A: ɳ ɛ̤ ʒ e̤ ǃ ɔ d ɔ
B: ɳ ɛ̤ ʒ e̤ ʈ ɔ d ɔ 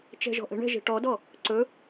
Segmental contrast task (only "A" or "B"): B